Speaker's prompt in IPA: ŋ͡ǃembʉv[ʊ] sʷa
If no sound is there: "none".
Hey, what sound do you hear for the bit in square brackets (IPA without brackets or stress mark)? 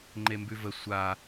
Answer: ə